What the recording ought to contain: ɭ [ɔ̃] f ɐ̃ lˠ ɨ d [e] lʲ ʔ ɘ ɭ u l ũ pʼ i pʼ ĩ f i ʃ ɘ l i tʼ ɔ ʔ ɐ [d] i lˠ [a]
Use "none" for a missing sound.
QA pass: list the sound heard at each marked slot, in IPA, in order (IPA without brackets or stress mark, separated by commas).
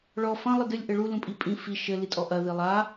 ɔ, ɨ, ð, a